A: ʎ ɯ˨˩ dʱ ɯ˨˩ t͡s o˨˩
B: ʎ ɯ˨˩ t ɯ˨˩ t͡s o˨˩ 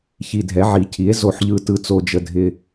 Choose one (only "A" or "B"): B